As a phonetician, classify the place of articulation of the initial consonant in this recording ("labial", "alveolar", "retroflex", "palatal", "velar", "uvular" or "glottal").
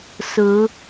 alveolar